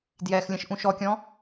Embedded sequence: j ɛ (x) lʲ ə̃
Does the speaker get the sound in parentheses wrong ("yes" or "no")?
no